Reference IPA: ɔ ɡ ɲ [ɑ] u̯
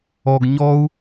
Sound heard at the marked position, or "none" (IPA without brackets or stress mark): ɔ